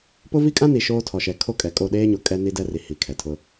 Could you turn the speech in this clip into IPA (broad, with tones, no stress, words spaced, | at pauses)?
pʊ˦ vi˦kʼã˦ni˨ ʃoː˦tʰɔ˨ʃɛ˨ kʰo˦˨ kʼɛ˨kʼo˦˨ɗeː˦ɲo˨ kʼɛ˦ni˦dɛ˦ri˨ hi˨kʰɛ˨tʰʊ˦